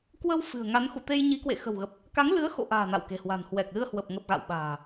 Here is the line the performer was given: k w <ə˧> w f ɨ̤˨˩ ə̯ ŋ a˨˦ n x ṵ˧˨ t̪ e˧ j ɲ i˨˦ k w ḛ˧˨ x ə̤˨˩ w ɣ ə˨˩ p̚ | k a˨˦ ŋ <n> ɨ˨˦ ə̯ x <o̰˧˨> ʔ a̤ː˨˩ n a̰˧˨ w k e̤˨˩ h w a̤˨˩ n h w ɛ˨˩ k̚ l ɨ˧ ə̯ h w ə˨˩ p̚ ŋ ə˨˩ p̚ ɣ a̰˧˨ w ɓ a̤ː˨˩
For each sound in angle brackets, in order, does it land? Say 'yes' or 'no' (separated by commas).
yes, no, yes